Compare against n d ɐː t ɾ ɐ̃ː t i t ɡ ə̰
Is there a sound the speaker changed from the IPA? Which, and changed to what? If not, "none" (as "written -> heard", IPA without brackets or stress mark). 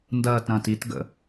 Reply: none